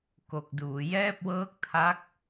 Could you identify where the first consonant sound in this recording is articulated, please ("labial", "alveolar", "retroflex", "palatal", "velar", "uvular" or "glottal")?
velar